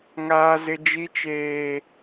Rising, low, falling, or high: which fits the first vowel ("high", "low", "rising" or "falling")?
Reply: high